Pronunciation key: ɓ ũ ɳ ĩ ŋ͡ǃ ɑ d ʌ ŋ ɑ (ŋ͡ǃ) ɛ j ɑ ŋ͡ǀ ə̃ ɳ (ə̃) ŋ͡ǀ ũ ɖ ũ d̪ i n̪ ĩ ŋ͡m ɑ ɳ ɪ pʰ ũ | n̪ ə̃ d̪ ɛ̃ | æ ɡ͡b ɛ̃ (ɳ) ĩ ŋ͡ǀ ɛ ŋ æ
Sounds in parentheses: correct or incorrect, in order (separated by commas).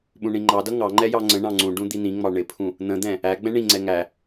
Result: correct, incorrect, correct